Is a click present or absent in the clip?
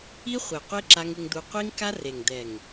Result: present